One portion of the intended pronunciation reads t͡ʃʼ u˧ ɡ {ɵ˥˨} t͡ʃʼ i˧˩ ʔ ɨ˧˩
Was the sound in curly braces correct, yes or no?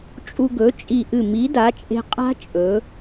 no